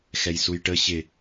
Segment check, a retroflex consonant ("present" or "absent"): present